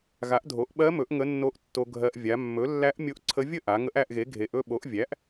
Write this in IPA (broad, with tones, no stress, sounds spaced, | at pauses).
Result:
ɣ a˩˥ ʔ dʱ o˩˥ ʔ ɓ ɜ˧˥ m ɵ˩˥ ʔ ŋ ə˧˥ nː o˧˥ ʔ tː o˧ ɡʱ ɜ˧ ʔ vʲ a˩˧ mː ɵ˩˥ lː æ˧˥ ʔ mʲ o˧˥ ʔ ǀʰ ə˧˥ vʲ ə˥˨ ʔ a˩˧ ŋ ə˧˥ ʔ æ˥˨ ʔ ɣ e˩˥ ɡʱ e˩˧ ʔ ɵ˥˨ ɓ o˩˥ ʔ vʲ æ˩˥ ʔ